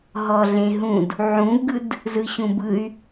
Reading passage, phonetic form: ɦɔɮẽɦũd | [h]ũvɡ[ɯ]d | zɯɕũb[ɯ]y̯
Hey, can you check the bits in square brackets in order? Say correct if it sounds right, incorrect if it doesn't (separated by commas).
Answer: incorrect, correct, correct